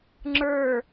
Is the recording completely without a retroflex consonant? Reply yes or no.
yes